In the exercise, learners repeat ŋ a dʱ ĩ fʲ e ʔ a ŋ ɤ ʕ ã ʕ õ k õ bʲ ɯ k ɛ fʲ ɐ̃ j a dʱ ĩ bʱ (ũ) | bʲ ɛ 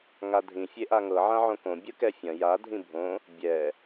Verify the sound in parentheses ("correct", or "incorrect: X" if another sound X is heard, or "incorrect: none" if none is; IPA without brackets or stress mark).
incorrect: õ